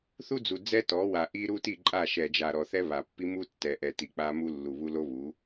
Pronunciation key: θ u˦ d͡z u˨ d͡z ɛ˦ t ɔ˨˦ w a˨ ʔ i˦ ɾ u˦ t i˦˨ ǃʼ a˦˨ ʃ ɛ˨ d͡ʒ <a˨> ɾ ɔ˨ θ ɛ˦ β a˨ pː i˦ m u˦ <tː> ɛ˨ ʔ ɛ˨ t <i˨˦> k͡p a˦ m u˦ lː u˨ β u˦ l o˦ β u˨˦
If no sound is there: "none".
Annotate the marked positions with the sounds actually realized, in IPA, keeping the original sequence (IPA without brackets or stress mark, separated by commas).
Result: a˨, tː, i˨